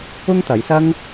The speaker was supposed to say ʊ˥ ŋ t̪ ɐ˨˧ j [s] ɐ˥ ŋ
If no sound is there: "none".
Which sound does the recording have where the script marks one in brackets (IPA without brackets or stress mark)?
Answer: s